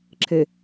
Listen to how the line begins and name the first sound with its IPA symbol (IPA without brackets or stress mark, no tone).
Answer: ǁʰ